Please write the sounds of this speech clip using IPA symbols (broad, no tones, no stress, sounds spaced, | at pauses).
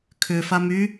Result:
kʰ ʏ f a m y